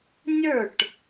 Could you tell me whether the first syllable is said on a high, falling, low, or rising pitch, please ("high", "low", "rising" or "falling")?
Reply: falling